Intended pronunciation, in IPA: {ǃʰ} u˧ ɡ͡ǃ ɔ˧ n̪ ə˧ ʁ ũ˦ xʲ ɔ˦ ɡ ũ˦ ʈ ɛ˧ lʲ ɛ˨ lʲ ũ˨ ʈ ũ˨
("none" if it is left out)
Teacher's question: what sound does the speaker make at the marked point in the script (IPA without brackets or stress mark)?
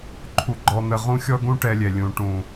ǃʰ